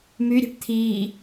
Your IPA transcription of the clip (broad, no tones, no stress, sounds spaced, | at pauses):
m y ɾʲ ɛ̤ ʈ t̪ʰ iː